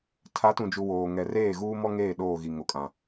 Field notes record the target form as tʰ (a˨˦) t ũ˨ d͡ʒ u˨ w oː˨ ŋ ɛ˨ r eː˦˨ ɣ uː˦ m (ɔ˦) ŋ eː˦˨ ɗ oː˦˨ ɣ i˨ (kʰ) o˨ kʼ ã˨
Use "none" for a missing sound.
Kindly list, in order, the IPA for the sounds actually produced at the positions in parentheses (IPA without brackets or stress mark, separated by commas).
a˨˦, ɔ˦, ŋ